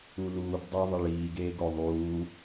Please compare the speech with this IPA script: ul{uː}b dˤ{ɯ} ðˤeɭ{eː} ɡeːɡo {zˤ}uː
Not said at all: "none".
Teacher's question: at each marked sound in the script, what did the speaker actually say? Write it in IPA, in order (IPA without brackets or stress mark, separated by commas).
uː, ɯ, iː, ðˤ